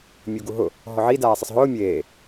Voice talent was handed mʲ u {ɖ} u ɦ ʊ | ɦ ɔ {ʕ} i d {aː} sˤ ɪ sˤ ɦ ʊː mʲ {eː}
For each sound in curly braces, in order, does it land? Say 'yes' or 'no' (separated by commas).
no, yes, yes, yes